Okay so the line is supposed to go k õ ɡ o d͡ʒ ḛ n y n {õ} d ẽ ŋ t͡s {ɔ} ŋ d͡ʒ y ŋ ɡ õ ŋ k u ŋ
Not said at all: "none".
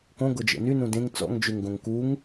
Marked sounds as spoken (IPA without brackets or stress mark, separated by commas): ũ, ɔ̰